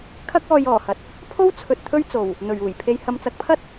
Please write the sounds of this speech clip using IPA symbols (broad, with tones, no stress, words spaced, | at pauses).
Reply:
kʰɐ˥k̚ɔː˧jɔː˨˩hɐ˨˥t̚ | pʰo˥wt͡sʰɵ˨t̚ t̪ʰɵ˥ɥt͡so˨˩w | n̪ɵ˨˩ɥuː˨˩jpʰe˨˧j hɐ˨mt͡sɐ˨˥k̚pʰɐ˥t̚